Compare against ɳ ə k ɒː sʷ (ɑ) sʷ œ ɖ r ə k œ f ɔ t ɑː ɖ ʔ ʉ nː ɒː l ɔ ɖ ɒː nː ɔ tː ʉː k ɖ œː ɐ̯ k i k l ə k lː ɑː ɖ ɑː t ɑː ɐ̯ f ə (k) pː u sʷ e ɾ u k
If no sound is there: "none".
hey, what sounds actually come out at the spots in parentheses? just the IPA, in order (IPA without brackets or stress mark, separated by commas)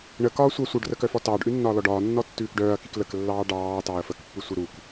ɑ, k